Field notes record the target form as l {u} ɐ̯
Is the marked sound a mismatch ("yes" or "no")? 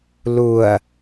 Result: no